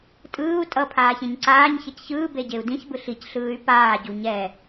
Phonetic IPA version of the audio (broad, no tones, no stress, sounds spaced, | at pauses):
tʼ ɯː u̯ tʼ ʌ pʰ aː ç ẽ ɲ ǀ aː ɲ ç ɛ c ç ɯː b e ɟ e u̯ d ĩ ç b ɯ ɬ i c ɬ ɯː y̯ p aː ɟ u ɲ ɛ